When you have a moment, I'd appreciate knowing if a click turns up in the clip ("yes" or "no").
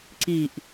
yes